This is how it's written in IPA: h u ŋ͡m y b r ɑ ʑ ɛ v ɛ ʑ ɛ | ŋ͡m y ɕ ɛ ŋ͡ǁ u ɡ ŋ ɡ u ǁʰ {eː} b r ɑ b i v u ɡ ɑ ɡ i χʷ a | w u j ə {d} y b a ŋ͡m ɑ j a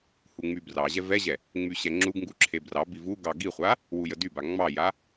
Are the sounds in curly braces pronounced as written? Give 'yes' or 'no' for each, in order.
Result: no, yes

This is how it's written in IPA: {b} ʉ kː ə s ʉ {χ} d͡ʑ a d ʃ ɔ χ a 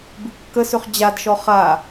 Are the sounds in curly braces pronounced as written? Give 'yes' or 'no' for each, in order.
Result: yes, yes

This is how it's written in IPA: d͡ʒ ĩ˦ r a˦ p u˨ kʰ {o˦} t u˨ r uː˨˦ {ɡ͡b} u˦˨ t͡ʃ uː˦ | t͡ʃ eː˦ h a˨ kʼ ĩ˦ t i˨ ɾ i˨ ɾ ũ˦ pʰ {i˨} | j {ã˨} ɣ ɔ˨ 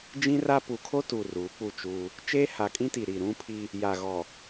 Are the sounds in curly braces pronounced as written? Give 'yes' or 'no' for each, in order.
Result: yes, no, no, no

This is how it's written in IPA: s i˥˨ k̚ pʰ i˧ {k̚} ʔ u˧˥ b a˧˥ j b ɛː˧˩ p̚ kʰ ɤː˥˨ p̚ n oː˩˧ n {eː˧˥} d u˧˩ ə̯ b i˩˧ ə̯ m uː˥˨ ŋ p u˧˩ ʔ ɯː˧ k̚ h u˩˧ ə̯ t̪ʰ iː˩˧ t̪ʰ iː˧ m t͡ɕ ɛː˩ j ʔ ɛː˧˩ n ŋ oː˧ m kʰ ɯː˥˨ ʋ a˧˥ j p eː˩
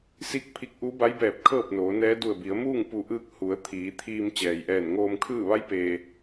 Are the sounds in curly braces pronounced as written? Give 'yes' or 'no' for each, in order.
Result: yes, no

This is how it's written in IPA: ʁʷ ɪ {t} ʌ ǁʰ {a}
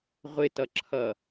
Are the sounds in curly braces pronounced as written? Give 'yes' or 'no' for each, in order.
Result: yes, no

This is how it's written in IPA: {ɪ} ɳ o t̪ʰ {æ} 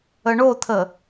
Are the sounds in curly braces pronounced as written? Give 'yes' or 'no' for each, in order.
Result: no, no

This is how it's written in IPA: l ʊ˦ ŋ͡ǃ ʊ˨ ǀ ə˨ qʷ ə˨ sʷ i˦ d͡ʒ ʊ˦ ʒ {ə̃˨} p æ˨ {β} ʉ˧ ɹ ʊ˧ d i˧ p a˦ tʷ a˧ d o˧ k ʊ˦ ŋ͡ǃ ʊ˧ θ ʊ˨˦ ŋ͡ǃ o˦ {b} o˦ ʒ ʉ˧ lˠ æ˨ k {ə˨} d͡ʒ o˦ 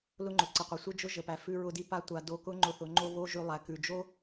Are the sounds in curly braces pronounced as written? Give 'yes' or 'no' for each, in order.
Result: no, no, no, no

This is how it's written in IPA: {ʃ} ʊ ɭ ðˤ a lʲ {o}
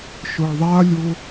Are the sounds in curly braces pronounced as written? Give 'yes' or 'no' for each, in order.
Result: yes, yes

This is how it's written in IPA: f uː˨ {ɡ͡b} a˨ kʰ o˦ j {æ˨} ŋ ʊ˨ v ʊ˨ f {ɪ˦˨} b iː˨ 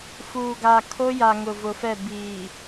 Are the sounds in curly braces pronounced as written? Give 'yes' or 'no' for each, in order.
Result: no, no, no

